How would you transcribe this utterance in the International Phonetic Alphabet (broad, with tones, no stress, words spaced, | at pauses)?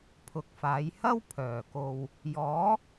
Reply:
pʰʊ˨k̚faː˨˧jhɐ˥w pʰœː˨˩ko˨w | jɔː˨˥